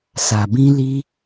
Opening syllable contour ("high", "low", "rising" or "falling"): low